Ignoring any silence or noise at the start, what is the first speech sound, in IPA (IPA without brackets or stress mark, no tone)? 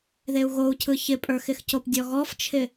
ð